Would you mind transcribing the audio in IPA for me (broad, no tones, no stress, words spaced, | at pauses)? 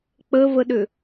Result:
k͡pəvəɗʏ